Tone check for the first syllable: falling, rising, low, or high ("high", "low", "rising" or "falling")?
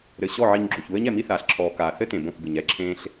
low